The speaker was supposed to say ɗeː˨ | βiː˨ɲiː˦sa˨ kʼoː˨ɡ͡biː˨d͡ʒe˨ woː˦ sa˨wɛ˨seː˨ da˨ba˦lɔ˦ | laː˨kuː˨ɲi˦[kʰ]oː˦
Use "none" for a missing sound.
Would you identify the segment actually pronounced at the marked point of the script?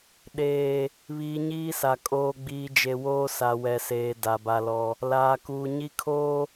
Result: kʰ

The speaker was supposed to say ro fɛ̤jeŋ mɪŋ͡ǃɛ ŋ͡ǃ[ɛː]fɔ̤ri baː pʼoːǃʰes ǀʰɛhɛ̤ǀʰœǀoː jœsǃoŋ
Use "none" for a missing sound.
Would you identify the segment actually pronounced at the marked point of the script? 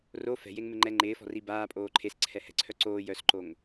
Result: ɪː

